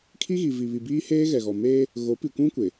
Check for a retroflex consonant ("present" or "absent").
absent